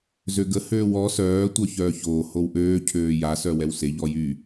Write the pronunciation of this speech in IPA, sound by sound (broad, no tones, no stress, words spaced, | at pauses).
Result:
zøɡə høːwɔ sœː tʷœçœːçoː howʔøː cʰøːja sœwɛwseʎ ɔjy